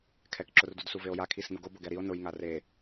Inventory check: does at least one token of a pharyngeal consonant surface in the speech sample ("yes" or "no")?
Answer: no